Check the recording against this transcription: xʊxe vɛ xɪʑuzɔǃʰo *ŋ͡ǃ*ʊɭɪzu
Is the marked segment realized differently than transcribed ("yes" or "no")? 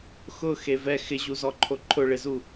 yes